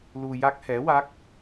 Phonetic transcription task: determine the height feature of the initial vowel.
high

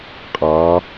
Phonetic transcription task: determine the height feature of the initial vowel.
low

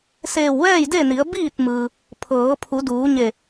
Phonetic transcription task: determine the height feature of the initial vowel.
mid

